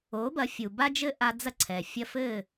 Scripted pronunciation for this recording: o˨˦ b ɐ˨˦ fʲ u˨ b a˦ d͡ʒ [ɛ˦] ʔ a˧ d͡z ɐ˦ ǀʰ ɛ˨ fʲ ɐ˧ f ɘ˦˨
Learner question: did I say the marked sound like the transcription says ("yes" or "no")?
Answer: no